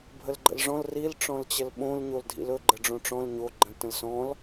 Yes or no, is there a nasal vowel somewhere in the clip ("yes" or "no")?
yes